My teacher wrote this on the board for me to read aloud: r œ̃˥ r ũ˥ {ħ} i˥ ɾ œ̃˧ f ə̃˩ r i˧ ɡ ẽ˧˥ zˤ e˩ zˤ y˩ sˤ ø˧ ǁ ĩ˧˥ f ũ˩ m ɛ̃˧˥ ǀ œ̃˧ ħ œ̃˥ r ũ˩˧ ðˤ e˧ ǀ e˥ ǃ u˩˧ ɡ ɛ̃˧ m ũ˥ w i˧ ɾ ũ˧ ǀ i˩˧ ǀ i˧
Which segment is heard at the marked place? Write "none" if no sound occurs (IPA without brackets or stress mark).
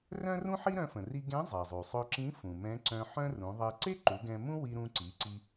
ħ